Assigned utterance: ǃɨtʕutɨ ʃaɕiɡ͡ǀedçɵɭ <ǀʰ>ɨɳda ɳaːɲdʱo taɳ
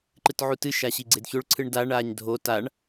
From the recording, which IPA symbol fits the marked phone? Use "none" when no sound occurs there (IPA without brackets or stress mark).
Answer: ǀʰ